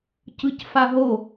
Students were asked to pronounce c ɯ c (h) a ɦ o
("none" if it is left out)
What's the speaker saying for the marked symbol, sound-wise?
f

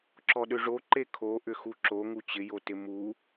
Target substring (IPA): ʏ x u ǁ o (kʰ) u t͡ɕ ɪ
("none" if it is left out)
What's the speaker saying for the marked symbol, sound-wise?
ŋ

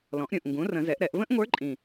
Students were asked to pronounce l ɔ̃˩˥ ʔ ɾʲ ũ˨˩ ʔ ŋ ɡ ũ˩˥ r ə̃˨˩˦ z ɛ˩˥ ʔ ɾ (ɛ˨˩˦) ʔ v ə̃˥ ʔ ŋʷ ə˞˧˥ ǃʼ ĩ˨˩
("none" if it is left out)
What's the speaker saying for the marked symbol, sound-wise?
ɛ˨˩˦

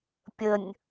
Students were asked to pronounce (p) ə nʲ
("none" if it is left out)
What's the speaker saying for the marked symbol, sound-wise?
pʲ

